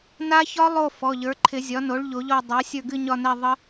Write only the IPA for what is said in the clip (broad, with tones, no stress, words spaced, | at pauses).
na˦˥çɒ˦˥lˠo˦˨ fɔ˩˧˩ʎə˞˩˥ǃʰɪ˨˩˦ zʲɒ˩˥no˩˥ɭ ʎo˨˩˦ʎɔ˦˨ dˤa˩˥ sʲə˞˦˨ɡɨ˦˨ɲɒ˦˨nɛ˦˨ ðˤə˦˥